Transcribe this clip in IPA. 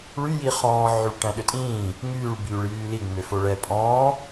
ɭ y j i χ ɔ̃ː ʕ y ɭ ʈ æ̃ ɗ ø tʼ ĩː | ŋ yː ɭ b yː ɭ j yː l i ŋ͡m ø f o ɭ ɛ pʼ ɔ̃ː

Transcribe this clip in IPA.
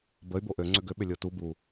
b ə y̯ b o ʔ ø ŋ͡ǀ ʏ ɡ ʏ ɓ ʏ lʲ o t u b u

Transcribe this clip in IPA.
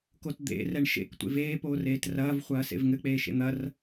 k o t d̪ ḛ r ɛ ɳ ʃ ḛ k tʷ ḛ v eː p oː r eː t r ɐː v χʷ ɐː s ḛ v ŋ ɘ k͡p eː ʃ ḛ n̪ ɐ r

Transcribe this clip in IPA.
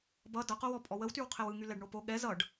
b ʌ d ʌ q o w ɔ pʼ ɔ w ə w t y w qʰ ɛ w ɯ ŋ y l ɛ ɖ ɳ o p o ɠ ɛ z ʌ ɖ

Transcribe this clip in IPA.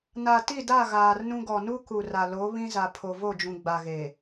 n a˨ t i˦˨ d a˦˨ ɣ aː˨ r n ũ˦ ɡ ɔ˨ n u˦ k u˨ r a˨ l o˨˦ β ĩ˦ z a˨ pʰ o˨ v o˦˨ d͡ʒ ũ˨ ɡ͡b a˨ ɣ e˨

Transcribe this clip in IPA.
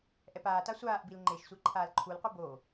ʔ ɛ p aː t a sʷ aː ʔ b i l ŋ͡ǃ e ʃ sʷ i ǃʰ aː l ǃʰ u l qʷ ɯ b o

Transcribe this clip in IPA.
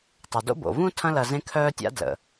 tˤ ɐ˩ d o̰˥ b o̰˩ v ũ˥ tʰ ɐ̃˦ l ɐ˨ z ẽ˥ kʰ œː˥ tʲ a̰˥ d l ə̰˩

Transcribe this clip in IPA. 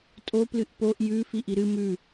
tʼ o p l ɨ ʔ p o ʔ j ʉ f i ʔ i ɾ ɨ m ʉ

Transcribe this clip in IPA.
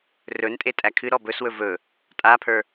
r ɵ n tʼ e tʼ æ kʰ ɨ ɾ ɔ b ɵ s w ɵ v ɵ | tʼ a pʰ ə˞

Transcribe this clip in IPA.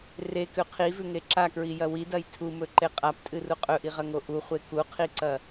r e k ʉ qʰ i v ʉ ŋ e ǁ a k ɹ i j ɐ w i d ɐ j tʰ u m ɵ ǃ e qʼ a p tʼ ɨ r u qʼ ɵ ʔ i ʁ ɐ ŋ o ʔ u χʷ e k u qʰ i ǀ ɐ

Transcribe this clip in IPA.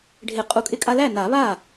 ɖʱ ɪ˨˩˦ qʼ u˨˩˦ kʼ ɪ˧ kʼ a˧ l æ˥˩ n a˨˩˦ β a˥˩

